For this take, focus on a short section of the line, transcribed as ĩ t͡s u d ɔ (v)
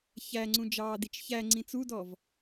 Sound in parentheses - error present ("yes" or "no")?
no